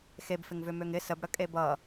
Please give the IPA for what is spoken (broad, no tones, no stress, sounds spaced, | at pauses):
x e b f ɪ ŋ v ʏ m ø ŋ ɪ s ə b ɽ ə kʼ e b ʌ